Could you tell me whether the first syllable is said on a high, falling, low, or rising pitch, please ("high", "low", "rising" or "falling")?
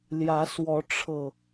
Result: rising